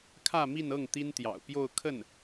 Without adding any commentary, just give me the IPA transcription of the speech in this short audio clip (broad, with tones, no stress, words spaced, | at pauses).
kʰä˥˧mi˥˧nɤ˥˩ŋ t̪i˥nt̪jɑ̰˨˩ʊ̯pjo˥˧ʊ̯kʰə˥˩n